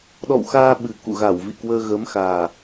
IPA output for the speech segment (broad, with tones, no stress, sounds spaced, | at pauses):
ɗ ɔ̰˧˨ w x aː˧ ɓ ɨ˨˩ k ṵ˧˨ ɣ a˧˩ w v ḭ˧˨ k w əː˧ ɣ əː˨˦ m x aː˨˩